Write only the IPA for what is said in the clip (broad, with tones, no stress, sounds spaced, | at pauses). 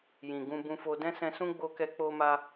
j ĩ˨ ɡ ũ˧ b ũ˧ f o˧ d ɛ̃˦ s ɛ̃˧ s ũ˦ ɡ͡b o˦ k ɛ˦ k͡p o˦ m a˦